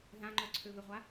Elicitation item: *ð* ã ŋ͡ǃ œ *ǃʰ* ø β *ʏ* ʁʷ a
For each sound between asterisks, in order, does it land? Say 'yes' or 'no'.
yes, no, yes

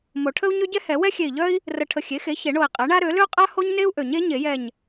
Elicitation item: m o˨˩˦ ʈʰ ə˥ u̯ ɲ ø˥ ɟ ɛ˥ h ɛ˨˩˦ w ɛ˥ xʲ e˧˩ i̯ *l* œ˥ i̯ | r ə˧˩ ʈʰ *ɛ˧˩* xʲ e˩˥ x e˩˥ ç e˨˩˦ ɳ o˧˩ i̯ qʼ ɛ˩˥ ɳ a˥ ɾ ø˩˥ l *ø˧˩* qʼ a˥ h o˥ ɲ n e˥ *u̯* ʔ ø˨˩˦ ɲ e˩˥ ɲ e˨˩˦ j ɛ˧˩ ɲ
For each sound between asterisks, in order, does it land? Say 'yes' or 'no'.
no, no, no, yes

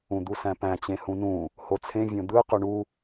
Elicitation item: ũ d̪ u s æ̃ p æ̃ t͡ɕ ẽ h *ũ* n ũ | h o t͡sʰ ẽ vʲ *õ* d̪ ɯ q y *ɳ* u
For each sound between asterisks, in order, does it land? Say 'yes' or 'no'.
yes, yes, yes

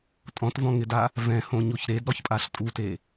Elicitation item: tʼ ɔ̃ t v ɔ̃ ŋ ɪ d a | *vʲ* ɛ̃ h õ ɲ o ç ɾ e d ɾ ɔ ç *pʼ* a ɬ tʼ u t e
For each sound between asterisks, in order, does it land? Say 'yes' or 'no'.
no, yes

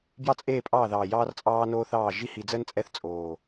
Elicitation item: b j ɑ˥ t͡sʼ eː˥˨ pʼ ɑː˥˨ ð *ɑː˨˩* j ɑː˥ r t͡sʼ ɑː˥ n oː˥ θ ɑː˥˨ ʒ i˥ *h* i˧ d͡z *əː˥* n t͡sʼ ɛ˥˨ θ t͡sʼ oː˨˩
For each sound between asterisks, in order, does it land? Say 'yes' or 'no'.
yes, yes, yes

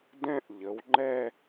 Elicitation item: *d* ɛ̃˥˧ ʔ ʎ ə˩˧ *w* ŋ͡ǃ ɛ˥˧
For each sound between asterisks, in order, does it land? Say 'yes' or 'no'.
yes, yes

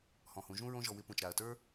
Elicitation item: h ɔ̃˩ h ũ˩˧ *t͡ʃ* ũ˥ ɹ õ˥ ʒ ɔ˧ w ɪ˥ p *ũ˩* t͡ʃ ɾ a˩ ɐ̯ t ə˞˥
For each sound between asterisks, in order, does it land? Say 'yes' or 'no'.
no, yes

